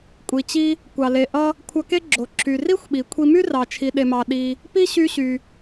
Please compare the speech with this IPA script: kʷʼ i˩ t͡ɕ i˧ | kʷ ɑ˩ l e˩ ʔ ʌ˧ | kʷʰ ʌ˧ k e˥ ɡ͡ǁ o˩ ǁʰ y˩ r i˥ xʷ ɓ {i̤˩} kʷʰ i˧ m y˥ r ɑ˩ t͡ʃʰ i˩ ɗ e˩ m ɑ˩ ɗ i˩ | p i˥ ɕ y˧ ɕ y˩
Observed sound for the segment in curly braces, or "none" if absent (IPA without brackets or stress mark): i˩